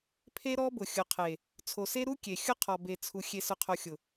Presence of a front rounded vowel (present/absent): absent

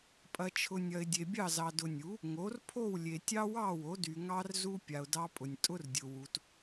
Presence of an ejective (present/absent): present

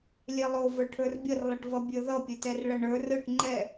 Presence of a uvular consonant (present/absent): absent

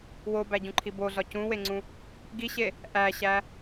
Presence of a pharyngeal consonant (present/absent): absent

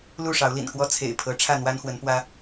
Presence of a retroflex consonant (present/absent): present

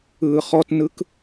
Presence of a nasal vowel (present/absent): absent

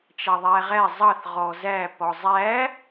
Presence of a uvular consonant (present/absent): present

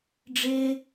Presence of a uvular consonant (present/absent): absent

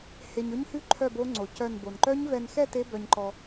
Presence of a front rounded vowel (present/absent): present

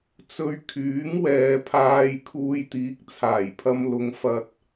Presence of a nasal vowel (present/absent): absent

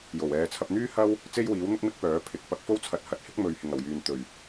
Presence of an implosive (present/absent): absent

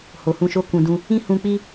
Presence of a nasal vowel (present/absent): present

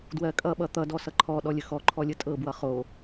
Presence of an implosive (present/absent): present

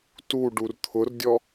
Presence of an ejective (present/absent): absent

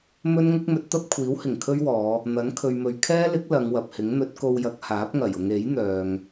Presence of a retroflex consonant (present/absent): absent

